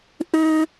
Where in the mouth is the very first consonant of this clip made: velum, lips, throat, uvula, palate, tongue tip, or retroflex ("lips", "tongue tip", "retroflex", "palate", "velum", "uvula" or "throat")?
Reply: throat